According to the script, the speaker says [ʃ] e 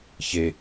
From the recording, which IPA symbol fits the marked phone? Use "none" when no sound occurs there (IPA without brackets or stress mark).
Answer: ç